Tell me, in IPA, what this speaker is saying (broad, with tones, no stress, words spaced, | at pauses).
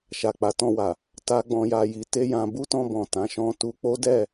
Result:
ʃa˨k͡pa˨˦tɔ̃˧wa˨ | ta˦ɡ͡bɔ̃˧ja˧ ji˧te˦jã˧ bu˦tɔ̃˧bɔ̃˨ tã˨˦ʃɔ̃˦ tu˧k͡po˦dɛ˦˨